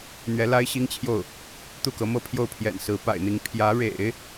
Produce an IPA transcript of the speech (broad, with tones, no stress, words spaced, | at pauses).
n̪ɥɛ˧˥la˥ɪ̯ɕi˥ŋt͡ɕʰjo˥˩ʊ̯ | t̪u˥˩kɤ˧˥mɤ˥˧ pʰjo˥˩ʊ̯pʰjɛ̰˨˩nsɹ̩˧˥ pa̰˨˩ɪ̯n̪i˧˥ŋ pʰjä˧˥ɻḛ˨˩˦ɪ̯